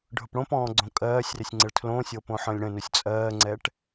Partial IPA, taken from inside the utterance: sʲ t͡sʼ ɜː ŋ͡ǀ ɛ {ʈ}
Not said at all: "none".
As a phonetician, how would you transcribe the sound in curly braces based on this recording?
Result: ʈ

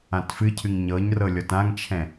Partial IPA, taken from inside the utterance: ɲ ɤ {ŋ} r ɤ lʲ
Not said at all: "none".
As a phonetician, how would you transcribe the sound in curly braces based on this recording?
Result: ɲ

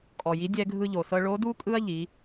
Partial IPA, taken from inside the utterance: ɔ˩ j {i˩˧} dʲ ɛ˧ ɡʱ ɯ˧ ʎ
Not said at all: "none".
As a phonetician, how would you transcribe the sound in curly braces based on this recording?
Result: i˩˧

